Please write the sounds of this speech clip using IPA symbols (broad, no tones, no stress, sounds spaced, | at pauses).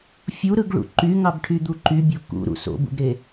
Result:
fʲ u ɾ ɯ ɡ ɭ ṵ ǃ y ŋ ɑ b ʈʰ y d̪ u ǃ y bʲ o k ṵ ɾ ṵ s o̰ b ṵ ɡ ɾ e